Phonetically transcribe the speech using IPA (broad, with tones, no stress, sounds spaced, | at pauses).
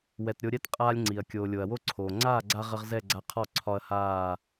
w ɛ˨ t ɾʲ o˧ ɾʲ ɛ˦ t qʼ aː˦ lʲ ŋ͡ǀ i˨ ɐ̯ kʲ oː˨ lʲ o˨ ɐ̯ w o˦ ǀʰ oː˨ ŋ͡ǀ aː˦˨ ɡ͡ǀ a˧ ʁ ə˧ ʁ z ɛ˦˨ ɡ͡ǀ a˧ qʰ ɒ˦˨ ǀʰ ɒ˧ ɐ̯ h aː˦˨